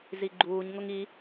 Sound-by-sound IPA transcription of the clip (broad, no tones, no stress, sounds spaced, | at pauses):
z i ɡ͡ǃ uː ɲ ŋ ʊ ŋ i